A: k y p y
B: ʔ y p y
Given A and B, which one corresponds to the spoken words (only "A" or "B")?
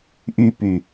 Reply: B